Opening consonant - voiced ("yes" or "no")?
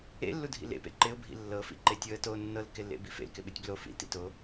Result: yes